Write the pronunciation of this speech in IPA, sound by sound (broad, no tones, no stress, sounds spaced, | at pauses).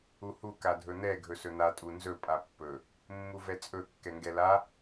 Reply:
u h u k a dʱ ɵ n̪ ɛ ɡʱ ɵ s ɵ n̪ a tʼ u n z ɵ pʼ a pː ɵ | mː u v ɛ t͡sʼ ɵ kː ɛ ŋ ɡ ɛ l a